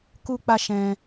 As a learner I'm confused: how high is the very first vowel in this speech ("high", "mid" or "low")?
high